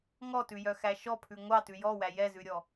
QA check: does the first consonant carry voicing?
yes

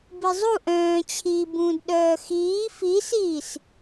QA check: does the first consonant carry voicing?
yes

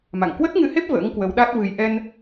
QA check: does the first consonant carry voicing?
yes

